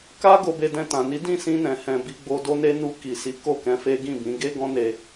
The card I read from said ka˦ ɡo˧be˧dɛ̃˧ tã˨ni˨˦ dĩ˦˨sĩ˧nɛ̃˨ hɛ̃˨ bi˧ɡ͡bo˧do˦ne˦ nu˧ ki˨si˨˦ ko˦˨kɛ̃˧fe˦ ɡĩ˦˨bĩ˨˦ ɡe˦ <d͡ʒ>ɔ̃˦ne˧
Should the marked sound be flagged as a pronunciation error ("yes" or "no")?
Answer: yes